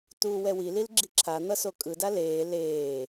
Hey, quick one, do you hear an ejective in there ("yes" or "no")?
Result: yes